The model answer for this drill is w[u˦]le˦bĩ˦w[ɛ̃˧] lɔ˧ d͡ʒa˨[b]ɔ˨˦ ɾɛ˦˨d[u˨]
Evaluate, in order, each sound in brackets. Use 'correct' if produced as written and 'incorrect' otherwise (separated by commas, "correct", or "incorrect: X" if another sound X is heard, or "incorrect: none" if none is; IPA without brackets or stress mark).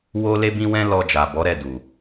incorrect: o˦, incorrect: ɛ̃˦, correct, correct